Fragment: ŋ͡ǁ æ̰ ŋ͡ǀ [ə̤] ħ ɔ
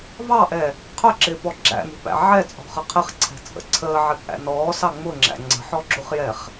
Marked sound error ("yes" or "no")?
no